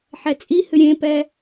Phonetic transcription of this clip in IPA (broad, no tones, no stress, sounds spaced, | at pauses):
ħ ɛ t͡sʼ i h ɨ ɾʲ ẽ p ɛ